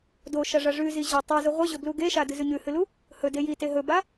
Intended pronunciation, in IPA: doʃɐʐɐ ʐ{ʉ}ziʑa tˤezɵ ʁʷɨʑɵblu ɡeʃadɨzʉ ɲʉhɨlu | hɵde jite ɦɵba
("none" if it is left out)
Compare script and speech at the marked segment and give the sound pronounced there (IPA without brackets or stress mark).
ʉ